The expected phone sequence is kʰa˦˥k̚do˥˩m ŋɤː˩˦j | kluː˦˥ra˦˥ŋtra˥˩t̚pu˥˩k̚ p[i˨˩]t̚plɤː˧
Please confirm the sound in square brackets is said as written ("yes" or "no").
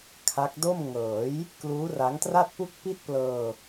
no